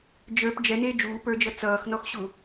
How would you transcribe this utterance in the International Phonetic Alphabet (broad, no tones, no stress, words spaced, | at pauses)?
d͡ʒə˞p d͡ʒɛneː d͡ʒuːpə˞d͡ʒʌ t͡sʌːxnɔxɕu